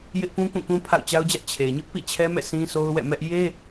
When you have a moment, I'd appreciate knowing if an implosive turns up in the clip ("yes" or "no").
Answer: no